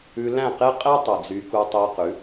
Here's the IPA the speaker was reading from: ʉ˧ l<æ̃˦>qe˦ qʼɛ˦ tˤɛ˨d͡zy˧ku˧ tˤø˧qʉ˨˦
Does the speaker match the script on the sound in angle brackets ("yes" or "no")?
no